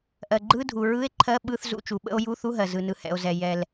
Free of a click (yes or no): no